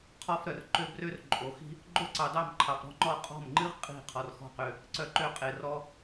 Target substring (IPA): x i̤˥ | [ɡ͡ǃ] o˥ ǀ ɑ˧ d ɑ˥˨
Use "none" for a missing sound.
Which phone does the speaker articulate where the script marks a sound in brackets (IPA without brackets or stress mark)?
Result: ɡ͡ǃ